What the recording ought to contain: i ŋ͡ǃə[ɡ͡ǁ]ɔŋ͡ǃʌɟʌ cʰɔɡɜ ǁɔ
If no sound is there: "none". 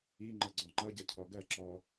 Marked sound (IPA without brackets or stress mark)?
ɡ͡ǀ